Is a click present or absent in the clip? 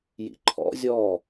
present